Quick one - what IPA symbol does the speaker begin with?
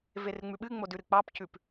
v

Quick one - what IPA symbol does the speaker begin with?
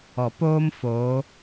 ɔ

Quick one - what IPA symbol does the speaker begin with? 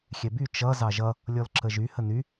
xʲ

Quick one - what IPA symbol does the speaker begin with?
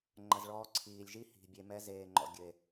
ŋ͡ǃ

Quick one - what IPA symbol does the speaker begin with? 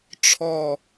ʈ͡ʂʰ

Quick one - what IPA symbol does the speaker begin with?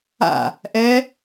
a̰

